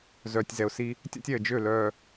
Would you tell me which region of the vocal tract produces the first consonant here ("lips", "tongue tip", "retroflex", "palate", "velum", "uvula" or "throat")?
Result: tongue tip